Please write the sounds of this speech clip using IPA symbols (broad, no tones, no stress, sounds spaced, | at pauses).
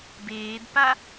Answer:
b eː d p a